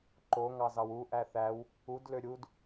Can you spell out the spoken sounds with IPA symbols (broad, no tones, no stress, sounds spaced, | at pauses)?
ǃ o ŋ ɑ z ɑ w u ʔ æ θ æ w | u d l ø ɾʲ u d